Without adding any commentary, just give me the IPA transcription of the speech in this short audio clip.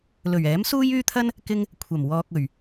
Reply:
l ɵ˨˩ ɥ ɛː˨˥ m s uː˥ j yː˥ t̪ʰ ɐ˥ n | k ɪ˧ ŋ | kʷʰ ɐ˨˩ m w ɔː˨ k̚ ɵ˨˩ ɥ

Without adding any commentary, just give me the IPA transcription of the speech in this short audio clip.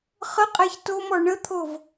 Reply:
χ ə qʼ æ ç t o m ɔ ɳ ə t̪ʰ o v

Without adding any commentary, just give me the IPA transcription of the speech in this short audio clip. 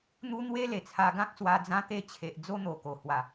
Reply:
n̪ u˦ n̪ w e˦ l e˨˩ t͡sʰ a˧ ɡ ã˦ k̚ s w a˧ d͡z ã˧ t̪ e˧ t͡ɕʰ e˨ ʔ d͡z o˦ n̪ o˨˩ k o˨˩ h w a˨˩

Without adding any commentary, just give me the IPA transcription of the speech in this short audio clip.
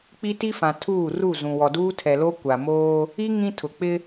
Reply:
k͡p i˦ t i˦ f ã˨ tʰ uː˦˨ r u˦˨ z ũ˨ w ɔ˨ d uː˦ tʰ ɛ˨ l o˦ kʷ a˨ m oː˦ | i˦ ŋ ĩ˦ tʰ ʊ˨ k͡p ɪ˦

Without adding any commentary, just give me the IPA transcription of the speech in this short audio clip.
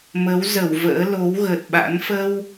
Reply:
m ə˨˦ w z ə˧˩ w v ə̰ː˧˥ l o˨˦ w ɣ ə˨˩ t̚ ɓ a̰˧˥ n f ə˧ w

